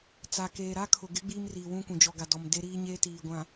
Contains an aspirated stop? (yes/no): yes